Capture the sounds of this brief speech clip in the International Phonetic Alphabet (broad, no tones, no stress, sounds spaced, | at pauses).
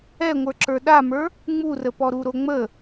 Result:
ɛ ŋʷ ə˞ ǁ ə˞ ɗ a m ə˞ | ŋ͡m u r ə p ɔ ɾ u ɾ o ŋ͡m ə